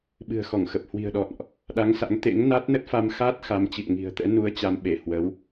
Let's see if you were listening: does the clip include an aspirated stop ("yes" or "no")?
no